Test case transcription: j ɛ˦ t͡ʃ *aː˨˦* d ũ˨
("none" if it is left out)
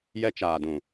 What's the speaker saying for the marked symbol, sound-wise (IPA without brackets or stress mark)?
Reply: aː˨